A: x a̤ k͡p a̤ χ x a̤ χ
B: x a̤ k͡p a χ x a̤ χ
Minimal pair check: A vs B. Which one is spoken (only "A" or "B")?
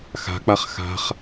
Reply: B